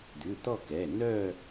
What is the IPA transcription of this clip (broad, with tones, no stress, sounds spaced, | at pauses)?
d̪ ʉ˩˧˩ t̪ ɔ˥˧ k ɛ˩˧˩ n œ˥˧